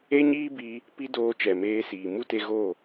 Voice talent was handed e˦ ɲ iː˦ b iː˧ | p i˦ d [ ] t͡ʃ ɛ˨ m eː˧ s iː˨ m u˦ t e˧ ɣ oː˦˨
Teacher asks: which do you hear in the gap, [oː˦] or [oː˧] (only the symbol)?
oː˧